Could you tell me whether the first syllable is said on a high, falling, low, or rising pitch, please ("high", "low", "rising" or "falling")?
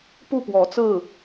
falling